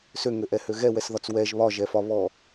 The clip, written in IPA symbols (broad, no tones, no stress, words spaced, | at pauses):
søŋøʔɛhø ɣɛwɛsðɒt͡s wɛʒ βɒʒɛfɒ βɔ